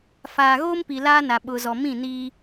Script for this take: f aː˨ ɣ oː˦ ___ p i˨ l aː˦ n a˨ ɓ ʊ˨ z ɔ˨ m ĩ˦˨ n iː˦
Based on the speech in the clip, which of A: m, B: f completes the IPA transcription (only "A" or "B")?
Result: A